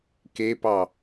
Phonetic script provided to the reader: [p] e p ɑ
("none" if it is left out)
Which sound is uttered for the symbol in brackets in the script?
k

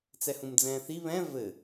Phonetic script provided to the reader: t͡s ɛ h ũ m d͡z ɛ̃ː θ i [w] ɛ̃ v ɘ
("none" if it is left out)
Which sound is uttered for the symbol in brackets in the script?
β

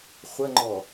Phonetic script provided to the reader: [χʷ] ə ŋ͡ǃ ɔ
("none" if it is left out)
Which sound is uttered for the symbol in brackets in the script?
χʷ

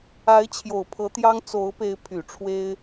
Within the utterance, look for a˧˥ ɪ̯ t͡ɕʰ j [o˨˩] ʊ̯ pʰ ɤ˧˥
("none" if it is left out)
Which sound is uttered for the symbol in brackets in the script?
o˨˩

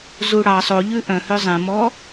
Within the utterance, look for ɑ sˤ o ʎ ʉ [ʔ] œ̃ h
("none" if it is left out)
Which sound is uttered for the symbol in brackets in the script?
ʔ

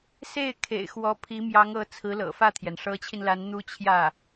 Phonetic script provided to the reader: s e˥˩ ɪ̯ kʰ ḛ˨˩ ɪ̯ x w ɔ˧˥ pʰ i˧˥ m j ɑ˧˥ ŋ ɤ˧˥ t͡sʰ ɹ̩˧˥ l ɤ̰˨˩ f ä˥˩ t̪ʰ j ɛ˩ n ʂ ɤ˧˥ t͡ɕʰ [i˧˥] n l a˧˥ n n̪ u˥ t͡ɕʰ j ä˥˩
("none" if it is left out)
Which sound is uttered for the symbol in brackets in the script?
i˧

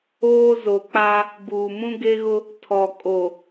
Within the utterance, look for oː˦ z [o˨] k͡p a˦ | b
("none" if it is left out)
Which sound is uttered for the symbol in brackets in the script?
o˨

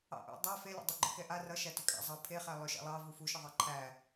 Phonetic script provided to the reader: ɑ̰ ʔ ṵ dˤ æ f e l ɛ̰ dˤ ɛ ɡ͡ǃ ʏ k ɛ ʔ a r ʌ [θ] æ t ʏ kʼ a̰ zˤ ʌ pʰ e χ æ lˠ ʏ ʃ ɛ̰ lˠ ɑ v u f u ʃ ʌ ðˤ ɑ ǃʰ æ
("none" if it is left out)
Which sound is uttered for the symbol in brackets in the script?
ʃ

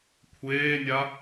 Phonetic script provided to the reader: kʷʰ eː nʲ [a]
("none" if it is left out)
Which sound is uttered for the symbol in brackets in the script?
a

